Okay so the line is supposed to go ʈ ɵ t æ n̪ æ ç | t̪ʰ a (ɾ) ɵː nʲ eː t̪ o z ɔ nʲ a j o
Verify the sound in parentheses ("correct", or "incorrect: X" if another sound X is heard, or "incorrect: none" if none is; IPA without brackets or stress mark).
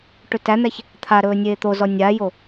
correct